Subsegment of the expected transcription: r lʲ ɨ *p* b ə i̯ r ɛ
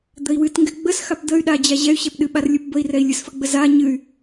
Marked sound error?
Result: no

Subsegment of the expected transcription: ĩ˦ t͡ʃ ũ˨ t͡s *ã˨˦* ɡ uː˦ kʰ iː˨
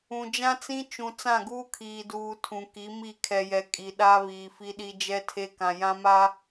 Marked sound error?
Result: yes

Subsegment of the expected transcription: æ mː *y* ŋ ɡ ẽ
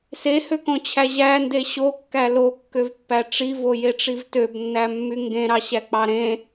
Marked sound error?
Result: no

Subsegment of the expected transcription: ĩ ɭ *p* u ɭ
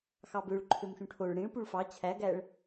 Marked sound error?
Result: no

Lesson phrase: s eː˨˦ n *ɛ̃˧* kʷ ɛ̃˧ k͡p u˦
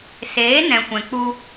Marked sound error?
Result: no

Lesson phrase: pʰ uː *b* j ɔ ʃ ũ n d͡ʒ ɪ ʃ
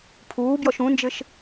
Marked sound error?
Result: no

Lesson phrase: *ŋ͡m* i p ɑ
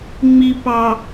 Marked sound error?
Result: no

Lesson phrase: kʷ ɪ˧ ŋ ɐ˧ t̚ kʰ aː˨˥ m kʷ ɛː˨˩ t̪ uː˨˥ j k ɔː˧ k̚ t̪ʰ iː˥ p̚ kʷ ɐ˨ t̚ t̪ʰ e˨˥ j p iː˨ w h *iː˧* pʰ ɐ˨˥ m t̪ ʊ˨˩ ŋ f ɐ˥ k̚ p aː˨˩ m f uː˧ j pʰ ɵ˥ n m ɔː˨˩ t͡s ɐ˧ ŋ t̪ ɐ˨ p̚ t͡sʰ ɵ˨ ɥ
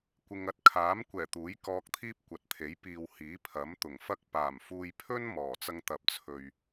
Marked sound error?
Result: yes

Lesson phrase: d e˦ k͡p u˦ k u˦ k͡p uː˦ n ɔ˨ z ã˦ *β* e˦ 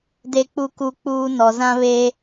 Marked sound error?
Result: no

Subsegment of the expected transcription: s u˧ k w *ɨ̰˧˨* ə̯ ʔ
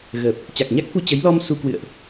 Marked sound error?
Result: no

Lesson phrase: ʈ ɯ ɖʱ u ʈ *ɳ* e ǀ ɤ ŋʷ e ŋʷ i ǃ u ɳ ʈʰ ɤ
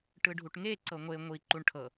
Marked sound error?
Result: yes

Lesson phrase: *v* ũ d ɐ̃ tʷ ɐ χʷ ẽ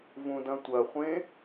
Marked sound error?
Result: no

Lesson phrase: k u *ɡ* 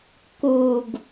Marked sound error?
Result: no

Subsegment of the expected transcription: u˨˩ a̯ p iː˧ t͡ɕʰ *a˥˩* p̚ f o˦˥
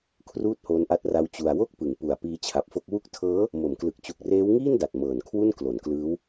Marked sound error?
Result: yes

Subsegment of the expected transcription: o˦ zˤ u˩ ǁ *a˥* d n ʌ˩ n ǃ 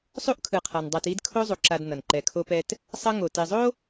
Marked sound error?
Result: yes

